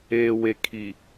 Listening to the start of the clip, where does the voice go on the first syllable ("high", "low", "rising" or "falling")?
low